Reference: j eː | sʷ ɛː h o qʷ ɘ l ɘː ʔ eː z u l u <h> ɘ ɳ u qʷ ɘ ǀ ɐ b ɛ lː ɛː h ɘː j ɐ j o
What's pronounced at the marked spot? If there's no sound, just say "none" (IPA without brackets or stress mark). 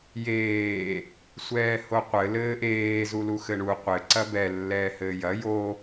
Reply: x